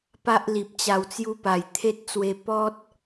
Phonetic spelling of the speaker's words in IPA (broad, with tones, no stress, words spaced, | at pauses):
pa˦ʔli˨p̚ t͡ɕa˧wt͡sju˦pa˨˩j t̪ʰe˦t̚t͡swe˧ pɔ˦t̚